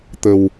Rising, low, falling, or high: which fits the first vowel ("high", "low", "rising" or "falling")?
low